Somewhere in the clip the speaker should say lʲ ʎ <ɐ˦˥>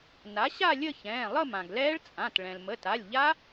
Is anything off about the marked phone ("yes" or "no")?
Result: yes